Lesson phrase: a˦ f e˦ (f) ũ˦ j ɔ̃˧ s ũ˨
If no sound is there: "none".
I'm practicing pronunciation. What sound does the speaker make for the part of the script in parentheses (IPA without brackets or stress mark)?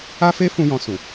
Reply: f